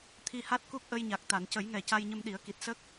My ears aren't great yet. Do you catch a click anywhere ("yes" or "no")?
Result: no